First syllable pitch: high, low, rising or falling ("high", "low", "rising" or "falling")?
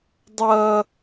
high